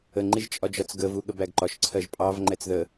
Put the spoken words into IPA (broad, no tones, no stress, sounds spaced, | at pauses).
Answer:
ə ŋ͡ǃ i ʒ t͡ʃʼ ɒ d͡ʒ ɒ t͡s ɡ ə v u ɠ ə b æ ɡ ǃ ɒ ʃ ǀʰ ɜ ʒ pʼ ɑ v ŋ͡ǃ ɛ t͡s ð ə